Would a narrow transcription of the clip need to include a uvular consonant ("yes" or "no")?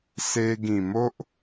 no